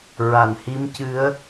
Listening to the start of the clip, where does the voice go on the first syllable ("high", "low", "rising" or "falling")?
low